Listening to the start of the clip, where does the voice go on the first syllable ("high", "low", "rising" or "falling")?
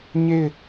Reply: falling